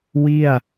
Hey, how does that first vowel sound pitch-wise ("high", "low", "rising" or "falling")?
falling